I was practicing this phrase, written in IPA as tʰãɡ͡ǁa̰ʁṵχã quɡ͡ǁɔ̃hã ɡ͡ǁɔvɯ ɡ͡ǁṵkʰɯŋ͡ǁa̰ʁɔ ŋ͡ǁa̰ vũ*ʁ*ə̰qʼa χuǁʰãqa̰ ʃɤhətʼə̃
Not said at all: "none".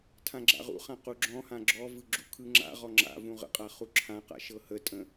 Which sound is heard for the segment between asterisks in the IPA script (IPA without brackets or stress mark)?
ʁ